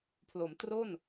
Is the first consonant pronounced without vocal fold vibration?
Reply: yes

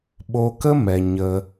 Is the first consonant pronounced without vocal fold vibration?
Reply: no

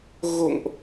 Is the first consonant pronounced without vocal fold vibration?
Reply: no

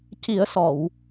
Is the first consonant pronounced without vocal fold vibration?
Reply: yes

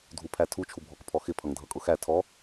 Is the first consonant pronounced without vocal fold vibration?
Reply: no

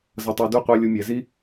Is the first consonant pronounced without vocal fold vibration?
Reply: no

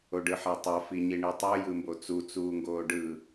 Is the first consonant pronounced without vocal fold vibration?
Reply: no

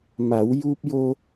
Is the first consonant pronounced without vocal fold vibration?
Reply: no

